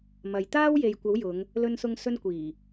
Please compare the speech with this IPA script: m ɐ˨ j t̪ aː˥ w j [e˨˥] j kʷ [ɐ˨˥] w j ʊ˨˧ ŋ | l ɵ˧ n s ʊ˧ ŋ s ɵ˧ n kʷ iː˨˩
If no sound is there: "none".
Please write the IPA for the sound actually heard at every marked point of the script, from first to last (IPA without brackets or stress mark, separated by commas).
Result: e˨, ɐ˨˥